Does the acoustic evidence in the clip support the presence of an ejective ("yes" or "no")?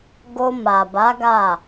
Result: no